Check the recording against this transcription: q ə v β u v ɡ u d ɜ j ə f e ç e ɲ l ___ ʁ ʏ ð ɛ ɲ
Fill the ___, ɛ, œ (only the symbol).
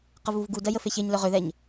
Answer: œ